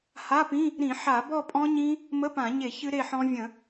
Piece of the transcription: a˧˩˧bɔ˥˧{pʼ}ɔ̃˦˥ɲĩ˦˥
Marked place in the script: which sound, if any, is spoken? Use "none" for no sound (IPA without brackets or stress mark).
pʼ